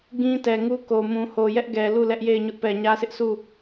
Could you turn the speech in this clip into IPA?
ɡ ĩ˦ t ɛ˨ ŋ u˦ k o˨ m ũ˨ h o˨ j ɛ˦ ʔ ɡ ɛ˨ l u˦˨ l ɛ˦ ʔ j e˦˨ ɪ̯ ɲ ʊ˦ ʔ p ɛ˨ ɲ ä˦ sʰ ɪ˦ ʔ s u˦˨

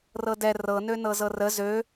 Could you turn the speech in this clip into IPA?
r ɤ d ɛ r ɤ n ø n ɤ z ɤ r ə z ø

